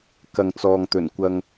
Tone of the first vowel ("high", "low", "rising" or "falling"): low